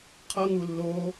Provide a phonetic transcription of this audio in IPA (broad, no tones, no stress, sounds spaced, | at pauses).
qʰ ʌ ŋ u lː o